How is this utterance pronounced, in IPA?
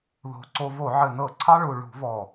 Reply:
ðo̤˨˩ ǀo˧vo˧˩˧ ʕɘ˨˩nɤ˧˩˧ǀʰɑ˧ ɭu˨˩ ɭṳ˧˩˧vɔ˨˩

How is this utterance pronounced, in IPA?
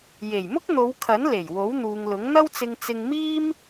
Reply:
je˨˩jmʊ˥k̚n̪o˨˧wkʰɐ˨˥n le˨˩jwo˨˥wn̪uː˨ŋlʊ˨˥ŋ n̪ɐ˥wt͡sɪ˧ŋ t͡sɪ˧ŋmiː˥m

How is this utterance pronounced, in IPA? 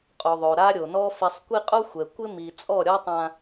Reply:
qʼo˨ðˤo˨ɾa˦ ɾʲo˨nɔ˦ fi˨sˤkʷi˦ qʼo˦xʷɛ˨ kʷɪ˦mi˨ t͡sʼɔ˦˨ɾʲɔ˦tˤã˦

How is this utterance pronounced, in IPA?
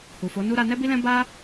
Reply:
hu˨fo˨˦nu˦ ɾa˧nɛ˦bi˦lɛ̃˦ ba˦

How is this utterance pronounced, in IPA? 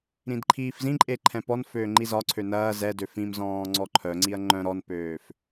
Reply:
ɾĩdǃʰiːfzĩǃʼe ǃʰɛ̃pɔnføː ŋ͡ǃizɒǀʰø nɐː zɛdø fĩmzɔ̃ː ŋ͡ǀɔǃʰœŋ͡ǀiɐ̯ ŋ͡ǃœ̃ ɾɔnpøːf

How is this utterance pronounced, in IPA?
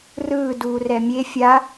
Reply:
rɯː duːrɛmʲe fʲa

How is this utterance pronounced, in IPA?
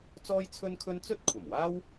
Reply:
t͡sɔː˥jt͡sʰɵ˥nkʰɵ˥n t͡sɵ˥t̚kʷʰɐ˨˩mwaː˥w

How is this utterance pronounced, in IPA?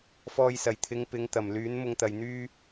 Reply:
fɔː˧jsɐ˨˩jt̪ʰɪ˨˧ŋ pɪ˨˧ŋt̪ɐ˨˩mlyː˨˥n mʊ˧ŋt̪ɐ˨jn̪yː˥

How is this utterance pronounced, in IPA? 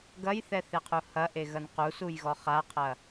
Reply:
ɡɐjθɛθeqʰu hɐʔeɣɐn qusujɣɔ χaqʰɐ

